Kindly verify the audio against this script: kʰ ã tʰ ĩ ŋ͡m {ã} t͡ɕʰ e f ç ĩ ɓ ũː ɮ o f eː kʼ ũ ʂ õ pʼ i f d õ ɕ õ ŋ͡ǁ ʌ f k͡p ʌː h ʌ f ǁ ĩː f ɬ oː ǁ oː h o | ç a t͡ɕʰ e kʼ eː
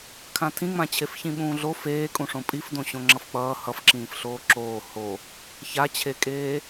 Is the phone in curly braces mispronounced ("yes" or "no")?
no